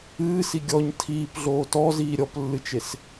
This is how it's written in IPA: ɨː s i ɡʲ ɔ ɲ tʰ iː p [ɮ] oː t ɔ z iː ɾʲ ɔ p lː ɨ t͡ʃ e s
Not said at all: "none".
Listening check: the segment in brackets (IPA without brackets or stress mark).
ɮ